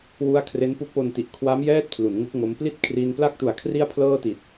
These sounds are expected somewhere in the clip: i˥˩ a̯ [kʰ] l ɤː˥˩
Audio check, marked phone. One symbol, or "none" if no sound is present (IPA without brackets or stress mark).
pʰ